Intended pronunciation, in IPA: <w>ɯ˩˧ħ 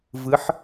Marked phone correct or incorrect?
incorrect